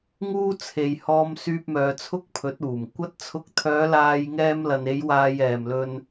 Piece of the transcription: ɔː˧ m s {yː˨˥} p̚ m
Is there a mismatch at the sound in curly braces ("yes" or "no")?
yes